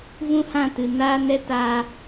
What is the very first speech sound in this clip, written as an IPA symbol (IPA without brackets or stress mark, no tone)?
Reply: v